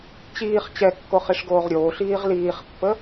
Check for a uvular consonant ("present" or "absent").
present